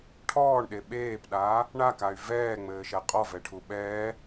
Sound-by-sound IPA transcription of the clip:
ʈʰ ɔː ɳ ɗ e ɓ eː p ɗ aː | ɳ a k a y̯ v ɛː ŋ͡m ɘː ʃ ɛ qʼ ɔ v ɛ ʈʰ u ɓ ɛː

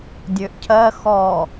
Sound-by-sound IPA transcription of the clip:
dʲ ø ʔ cʰ ɜ x ɔ

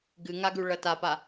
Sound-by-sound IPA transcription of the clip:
ɡ ɨ ŋ a ɡ ʉ ɭ ɐ t a p a

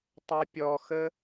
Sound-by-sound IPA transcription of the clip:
tˤ ɐ pʲ ɔ x ə

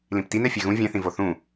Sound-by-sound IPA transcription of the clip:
l ĩ p t i n ɛ fʲ ɛ ɣ ũ vʲ ɛ̃ θ ĩ v o θ ũ

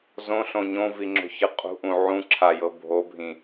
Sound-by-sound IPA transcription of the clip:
z õ ɬ õ ɲ õ v i ŋ͡ǁ o̤ ç ɯ qʼ ṳ ʔ ũ ʕ ũ ǁʰ a j ɤ bʱ o bʱ ĩ

